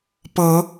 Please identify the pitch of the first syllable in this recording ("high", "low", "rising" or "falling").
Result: rising